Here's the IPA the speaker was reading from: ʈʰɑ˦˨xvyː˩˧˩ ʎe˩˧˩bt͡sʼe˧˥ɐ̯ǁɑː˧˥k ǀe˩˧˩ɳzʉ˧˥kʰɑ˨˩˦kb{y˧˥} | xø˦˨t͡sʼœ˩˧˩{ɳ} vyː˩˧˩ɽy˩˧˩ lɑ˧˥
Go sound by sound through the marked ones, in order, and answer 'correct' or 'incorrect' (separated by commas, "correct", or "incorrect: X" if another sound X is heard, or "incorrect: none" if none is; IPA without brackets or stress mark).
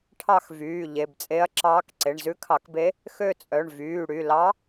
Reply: incorrect: e˧˥, correct